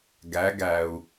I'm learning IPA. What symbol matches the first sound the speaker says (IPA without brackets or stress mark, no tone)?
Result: ɡ